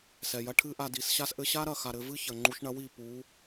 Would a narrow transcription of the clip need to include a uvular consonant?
no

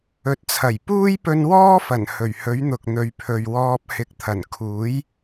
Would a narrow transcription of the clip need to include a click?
no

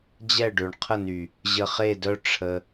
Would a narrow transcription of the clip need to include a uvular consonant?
yes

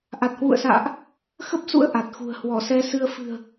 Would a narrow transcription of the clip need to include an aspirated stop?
no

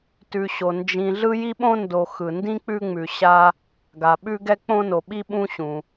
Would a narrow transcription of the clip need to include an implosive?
yes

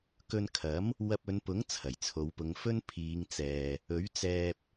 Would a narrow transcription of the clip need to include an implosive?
no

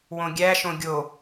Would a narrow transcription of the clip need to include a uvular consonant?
no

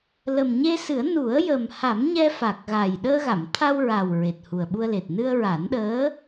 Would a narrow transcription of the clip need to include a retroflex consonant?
no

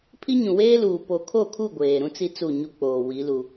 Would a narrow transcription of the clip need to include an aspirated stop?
yes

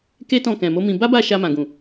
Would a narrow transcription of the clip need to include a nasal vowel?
yes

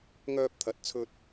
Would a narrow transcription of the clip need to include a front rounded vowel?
yes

